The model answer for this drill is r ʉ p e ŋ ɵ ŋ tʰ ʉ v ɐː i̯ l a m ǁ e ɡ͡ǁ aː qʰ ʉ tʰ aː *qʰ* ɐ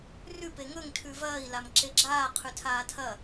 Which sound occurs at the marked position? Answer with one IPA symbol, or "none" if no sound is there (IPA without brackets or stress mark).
tʰ